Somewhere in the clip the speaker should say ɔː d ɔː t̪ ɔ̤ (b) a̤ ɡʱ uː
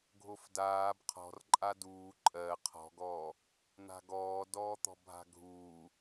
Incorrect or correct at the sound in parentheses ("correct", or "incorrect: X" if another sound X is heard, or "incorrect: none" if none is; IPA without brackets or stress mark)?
incorrect: bʱ